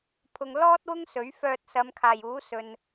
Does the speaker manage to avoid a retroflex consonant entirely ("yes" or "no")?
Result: yes